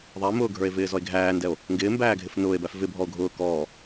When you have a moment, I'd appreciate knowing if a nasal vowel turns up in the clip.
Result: no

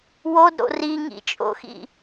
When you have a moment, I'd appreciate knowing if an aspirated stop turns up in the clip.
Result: no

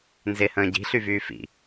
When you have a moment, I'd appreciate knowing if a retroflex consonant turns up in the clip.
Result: no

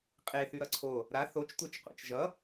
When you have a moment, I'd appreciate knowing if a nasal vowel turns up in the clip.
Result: no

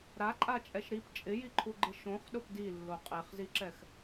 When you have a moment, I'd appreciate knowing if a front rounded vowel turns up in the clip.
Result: no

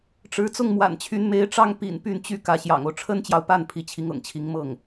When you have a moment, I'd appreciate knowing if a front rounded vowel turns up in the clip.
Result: yes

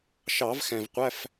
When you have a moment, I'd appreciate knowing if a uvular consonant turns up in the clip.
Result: yes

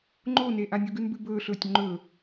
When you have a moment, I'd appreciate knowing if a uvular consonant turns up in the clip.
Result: no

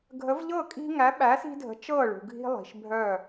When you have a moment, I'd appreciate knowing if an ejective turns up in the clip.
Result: yes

